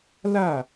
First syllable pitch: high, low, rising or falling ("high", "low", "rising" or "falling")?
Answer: falling